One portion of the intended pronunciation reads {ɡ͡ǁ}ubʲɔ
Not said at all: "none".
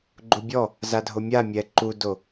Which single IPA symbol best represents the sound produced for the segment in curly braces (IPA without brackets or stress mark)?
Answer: ɡ͡ǃ